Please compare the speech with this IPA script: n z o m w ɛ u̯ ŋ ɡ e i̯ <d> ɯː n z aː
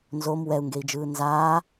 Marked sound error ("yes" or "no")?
yes